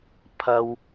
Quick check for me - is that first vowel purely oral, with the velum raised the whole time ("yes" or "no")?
yes